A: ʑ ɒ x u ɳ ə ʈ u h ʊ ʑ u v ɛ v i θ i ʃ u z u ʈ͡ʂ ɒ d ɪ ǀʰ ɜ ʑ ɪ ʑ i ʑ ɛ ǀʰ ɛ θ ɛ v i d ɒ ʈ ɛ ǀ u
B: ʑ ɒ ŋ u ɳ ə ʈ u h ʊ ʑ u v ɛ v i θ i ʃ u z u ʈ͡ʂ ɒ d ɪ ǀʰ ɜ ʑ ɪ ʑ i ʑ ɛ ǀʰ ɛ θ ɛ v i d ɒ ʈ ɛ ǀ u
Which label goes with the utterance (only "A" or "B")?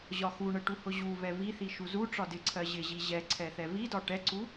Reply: A